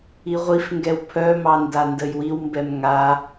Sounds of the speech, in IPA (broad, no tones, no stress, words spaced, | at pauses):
iʁʷifŋɡɛw pʰœmɑnda ndəjwiwmbɛm ŋa